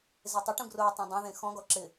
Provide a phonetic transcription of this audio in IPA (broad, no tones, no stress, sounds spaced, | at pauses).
z e tˤ ɪ ʈ ũ ɡ r ʊː tˤ ã dˤ ã ð ẽ x ɔ̃ ɡ ɔ ǁ ɪ